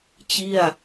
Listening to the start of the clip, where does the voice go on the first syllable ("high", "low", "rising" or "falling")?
falling